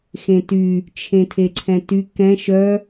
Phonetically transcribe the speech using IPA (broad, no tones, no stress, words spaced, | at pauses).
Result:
xẽty | t͡ʃʰẽtʰeǀʰɛ̃ty kɛ̃ ʃœ